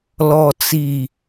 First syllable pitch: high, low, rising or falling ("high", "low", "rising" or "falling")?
low